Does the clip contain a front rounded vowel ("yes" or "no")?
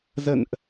no